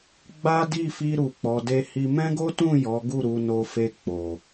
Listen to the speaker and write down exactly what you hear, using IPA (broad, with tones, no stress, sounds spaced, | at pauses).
ɡ͡b a˦ d i˦˨ f i˧ ɾ u˨ k͡p ɔ˨ d e˧ h i˧ m ɛ̃˦ ɡ o˦ t ũ˦˨ j ɔ˨˦ ɡ u˦˨ ɾ u˧ n o˧ f e˧ k͡p o˨